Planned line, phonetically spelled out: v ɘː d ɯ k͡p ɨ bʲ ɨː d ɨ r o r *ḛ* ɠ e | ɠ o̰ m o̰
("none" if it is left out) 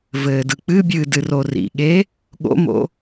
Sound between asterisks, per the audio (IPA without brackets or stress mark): ḭ